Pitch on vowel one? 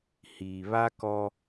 low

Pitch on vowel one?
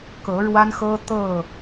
rising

